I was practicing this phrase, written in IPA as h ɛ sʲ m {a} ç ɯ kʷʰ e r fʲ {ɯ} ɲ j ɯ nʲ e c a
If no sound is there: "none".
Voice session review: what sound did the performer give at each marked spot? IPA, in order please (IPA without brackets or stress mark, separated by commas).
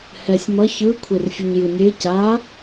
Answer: ʌ, u